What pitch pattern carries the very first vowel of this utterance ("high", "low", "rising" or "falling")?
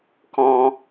high